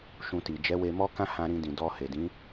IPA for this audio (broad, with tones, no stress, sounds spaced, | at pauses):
ʃ ũ˧ t i˨ d͡ʒ ɛ˨˦ w e˧ m ɔ˦ k ã˦ h ã˧ ɾ ĩ˧ d ĩ˨ d ɔ˧ h e˨ d ĩ˨˦